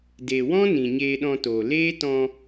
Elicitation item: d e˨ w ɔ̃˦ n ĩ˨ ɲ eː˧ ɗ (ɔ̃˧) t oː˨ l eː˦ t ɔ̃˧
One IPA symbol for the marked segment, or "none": ɔ̃˧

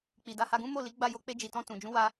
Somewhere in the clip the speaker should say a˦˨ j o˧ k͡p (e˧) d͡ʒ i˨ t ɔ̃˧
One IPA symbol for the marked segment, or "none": e˧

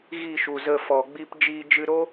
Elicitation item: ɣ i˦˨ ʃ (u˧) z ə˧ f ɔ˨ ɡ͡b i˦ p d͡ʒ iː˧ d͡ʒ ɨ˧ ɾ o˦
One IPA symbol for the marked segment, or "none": u˨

